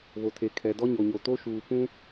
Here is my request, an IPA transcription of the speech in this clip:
βo˨tʰe˨ kʰɛ˨dɔ˦ɲo˨ɲo˨ to˦ʃuː˨ pũ˦

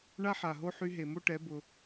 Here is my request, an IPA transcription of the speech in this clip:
ɳa˦ħa˨ɦo˦ ħy˧ɦe˨mo˦ʈɛ˨˦ bʊ˧

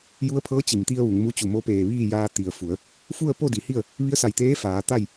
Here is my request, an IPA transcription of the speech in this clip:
ju˧˥ə̯pʰɤː˧˥ t͡ɕi˩mt̪i˧ə̯ ʋu˩˧ŋmu˧˥t͡ɕu˧˩ mo˧˥peː˧˩ʋiː˥˨jaː˧ t̪i˩ə̯fu˩˧ə̯ | fu˥˨ə̯po˥˨di˩˧hi˥˨ə̯ | ʋi˧˥ə̯sa˧˩jt̪eː˧˥ faː˩˧ t̪a˥˨j

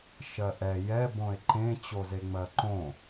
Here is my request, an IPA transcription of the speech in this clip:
ʃɜʔɛ jɛ bõe̯ǃẽ t͡ɕozeŋ͡mɜǃõ

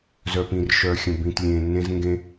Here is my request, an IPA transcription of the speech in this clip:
zœ˨pĩ˨rʃœ˨xʲə̃˨ bĩ˨tlʲẽː˨nːẽ˧z ŋɡẽ˦

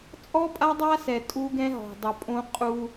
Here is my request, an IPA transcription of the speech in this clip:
t͡sʼɔ˦pʼa˦dˤa˦sɛ˨ tʼu˦ɡɛ̃˦ ɦɔ̤˨dˤo˨pʼõ˦ qʼu˦

